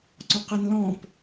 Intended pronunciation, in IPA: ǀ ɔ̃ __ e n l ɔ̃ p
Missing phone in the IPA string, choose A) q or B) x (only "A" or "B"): A